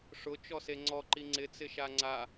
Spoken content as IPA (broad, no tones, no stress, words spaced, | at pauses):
ʂʊ t͡ʃɔseŋ͡ǀɔǃi ŋ͡ǀɪt͡sɪʃa ŋ͡ǀa